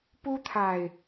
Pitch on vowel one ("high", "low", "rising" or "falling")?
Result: high